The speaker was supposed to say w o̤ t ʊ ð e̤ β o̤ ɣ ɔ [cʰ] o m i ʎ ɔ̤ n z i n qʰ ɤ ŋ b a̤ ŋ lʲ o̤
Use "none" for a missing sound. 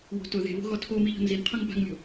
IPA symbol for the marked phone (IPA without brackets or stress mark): tʰ